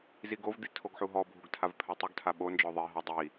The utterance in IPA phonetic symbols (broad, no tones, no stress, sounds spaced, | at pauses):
z i ɡ o v d̪ i tʰ o ɡ ħ u ɦ ɔ bʱ u ɡ tʰ a v pʰ ɛ tˤ u ɡ tʰ a ɓ o n d͡ʒ ɔ ðˤ i ɦ ɔ dˤ i